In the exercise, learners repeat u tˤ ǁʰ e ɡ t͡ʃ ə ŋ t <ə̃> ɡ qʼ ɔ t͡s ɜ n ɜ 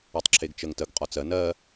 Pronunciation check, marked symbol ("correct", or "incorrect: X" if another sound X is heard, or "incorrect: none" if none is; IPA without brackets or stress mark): incorrect: ə